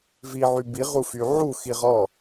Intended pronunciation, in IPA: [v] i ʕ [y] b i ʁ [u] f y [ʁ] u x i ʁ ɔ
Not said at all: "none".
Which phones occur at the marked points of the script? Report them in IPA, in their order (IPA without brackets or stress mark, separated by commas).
v, y, u, ʕ